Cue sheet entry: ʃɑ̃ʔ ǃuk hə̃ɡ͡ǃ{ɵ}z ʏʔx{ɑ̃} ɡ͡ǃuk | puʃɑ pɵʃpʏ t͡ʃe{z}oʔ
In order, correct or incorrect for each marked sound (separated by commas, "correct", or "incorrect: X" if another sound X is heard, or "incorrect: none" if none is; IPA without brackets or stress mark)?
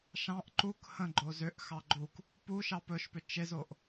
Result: incorrect: o, incorrect: ɑ, correct